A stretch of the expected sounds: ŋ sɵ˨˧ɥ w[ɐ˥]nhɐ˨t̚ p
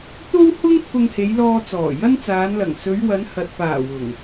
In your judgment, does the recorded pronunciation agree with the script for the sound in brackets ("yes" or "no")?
no